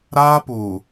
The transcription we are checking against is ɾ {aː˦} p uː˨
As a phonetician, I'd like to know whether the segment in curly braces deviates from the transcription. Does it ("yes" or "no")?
no